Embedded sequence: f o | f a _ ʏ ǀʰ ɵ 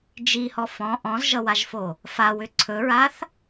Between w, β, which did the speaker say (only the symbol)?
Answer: w